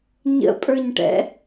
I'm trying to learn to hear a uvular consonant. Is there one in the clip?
no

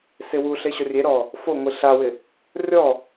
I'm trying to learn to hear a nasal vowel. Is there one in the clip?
no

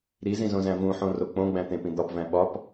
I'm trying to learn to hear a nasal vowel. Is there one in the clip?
yes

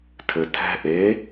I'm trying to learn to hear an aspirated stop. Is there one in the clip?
yes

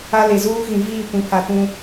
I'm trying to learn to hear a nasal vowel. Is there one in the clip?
yes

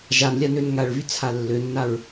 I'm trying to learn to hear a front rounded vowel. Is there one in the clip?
yes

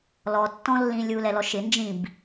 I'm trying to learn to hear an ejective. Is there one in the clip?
no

